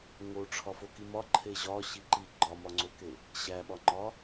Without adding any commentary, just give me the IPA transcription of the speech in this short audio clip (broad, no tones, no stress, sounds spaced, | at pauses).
ŋ o ʈ͡ʂʰ ɒ f o k i m ɒ ǃʰ e ʑ ɒ ɕ i ǃ i ɡ͡ǃ ɒ m ɒ ŋ͡ǀ o k e | ɕ æ ɓ ɒ ŋ͡ǃ ɒ